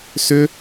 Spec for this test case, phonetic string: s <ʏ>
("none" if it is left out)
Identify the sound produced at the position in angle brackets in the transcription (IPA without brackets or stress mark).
ʏ